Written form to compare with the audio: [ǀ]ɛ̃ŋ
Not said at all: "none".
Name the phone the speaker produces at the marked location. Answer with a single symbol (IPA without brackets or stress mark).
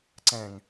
ǀ